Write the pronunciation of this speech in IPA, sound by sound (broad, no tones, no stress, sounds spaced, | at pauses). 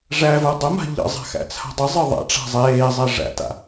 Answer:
ʐ æ v ə˞ dˤ ə m a̤ ʎ ə̰ zˤ a̤ x æ̰ t͡sʰ a̤ dˤ ɨ zˤ ɨ ðˤ a̰ ʈ͡ʂ a̤ zˤ eː zˤ æ ʐ æ̰ t a̰